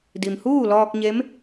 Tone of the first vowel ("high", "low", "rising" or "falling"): low